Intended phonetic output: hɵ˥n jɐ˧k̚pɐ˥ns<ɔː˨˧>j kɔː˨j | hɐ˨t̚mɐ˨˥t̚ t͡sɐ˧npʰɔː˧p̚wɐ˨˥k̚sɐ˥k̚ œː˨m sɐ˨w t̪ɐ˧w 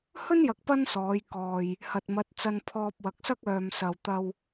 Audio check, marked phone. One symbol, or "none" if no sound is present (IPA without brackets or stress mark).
ɔː˨˧